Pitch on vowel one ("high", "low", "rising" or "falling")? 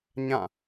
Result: falling